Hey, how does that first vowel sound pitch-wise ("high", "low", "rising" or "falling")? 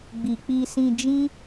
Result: low